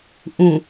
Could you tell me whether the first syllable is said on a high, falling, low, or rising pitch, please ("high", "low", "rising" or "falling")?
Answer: low